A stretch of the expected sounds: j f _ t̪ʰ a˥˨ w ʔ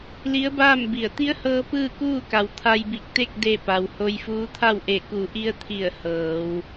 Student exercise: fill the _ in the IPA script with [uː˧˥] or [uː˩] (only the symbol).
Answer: uː˧˥